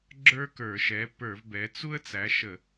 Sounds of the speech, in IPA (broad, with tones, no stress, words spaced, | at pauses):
ɡ͡ǁə˞˥kə˞˧˩˧ʃɛ˨˥ pə˞˧˩˧v bɛ˨˥ t͡su˥ə̯ t͡sæ˨˥ʃə˧˩˧